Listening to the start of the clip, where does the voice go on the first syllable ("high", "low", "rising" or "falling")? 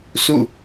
falling